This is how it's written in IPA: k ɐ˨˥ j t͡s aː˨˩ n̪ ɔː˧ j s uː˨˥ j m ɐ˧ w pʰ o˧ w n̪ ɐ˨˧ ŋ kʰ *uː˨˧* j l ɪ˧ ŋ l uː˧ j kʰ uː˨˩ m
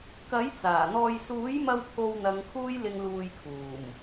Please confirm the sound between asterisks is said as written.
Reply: no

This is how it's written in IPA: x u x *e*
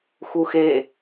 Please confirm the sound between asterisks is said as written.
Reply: yes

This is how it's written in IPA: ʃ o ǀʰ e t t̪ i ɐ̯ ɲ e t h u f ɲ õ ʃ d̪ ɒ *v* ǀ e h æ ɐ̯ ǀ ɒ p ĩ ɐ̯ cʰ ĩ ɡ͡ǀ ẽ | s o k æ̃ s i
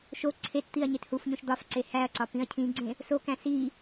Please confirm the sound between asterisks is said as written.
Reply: no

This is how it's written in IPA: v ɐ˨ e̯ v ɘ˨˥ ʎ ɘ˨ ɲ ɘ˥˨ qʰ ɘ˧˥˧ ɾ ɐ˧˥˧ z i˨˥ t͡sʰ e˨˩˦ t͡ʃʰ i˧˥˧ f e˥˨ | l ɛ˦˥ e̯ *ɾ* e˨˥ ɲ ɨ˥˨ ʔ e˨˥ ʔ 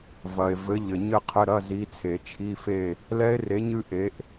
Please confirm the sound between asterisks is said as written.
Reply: no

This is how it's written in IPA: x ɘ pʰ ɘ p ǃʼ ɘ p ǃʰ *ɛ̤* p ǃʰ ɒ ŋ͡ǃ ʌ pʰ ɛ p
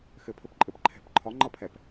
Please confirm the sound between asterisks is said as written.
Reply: yes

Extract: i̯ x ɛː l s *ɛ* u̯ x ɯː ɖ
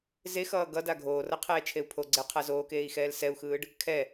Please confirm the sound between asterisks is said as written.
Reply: yes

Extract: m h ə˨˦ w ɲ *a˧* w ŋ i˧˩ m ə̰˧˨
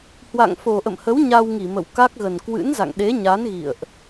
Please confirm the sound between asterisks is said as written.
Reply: yes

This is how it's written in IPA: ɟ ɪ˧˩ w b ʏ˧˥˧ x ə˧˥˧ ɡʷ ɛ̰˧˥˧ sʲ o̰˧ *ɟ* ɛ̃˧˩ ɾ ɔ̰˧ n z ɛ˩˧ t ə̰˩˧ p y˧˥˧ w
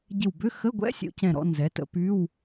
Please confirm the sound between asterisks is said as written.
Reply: no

